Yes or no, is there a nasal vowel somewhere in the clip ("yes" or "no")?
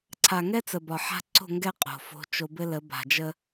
no